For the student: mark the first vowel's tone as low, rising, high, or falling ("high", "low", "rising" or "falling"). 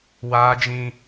high